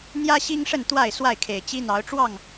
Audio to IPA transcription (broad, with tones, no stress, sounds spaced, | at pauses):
n̪ j ä˦ ɕ i˦ ŋ ʂ ə˥˨ n t̪ w a˥˨ ɪ̯ s w a˥˨ ɪ̯ kʰ e˨˩ ɪ̯ t͡ɕ i˦ n̪ ɑ˨˦ ʊ̯ ʈ͡ʂ w ɑ˥˨ ŋ